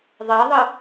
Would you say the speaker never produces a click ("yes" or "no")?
yes